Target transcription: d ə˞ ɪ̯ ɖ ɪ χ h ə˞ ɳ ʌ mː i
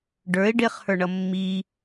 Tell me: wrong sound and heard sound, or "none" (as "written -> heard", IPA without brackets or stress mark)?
d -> ɖ